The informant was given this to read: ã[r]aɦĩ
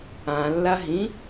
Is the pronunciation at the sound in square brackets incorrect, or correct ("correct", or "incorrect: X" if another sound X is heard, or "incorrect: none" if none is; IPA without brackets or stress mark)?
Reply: incorrect: lː